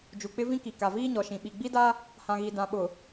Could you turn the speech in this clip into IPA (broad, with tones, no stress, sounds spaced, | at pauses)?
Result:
d͡ʒ u˨ k͡p ɪ˦ v ĩ˦ k i˨ k a˨ v iː˦ ɲ ɔ˨ ʃ ĩ˨ ɓ i˨ ɡ͡b i˦ d a˦ | h ã˨ ɣ i˨ d ã˨ ɓ ʊ˨